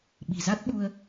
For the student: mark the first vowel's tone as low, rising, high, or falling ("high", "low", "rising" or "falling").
low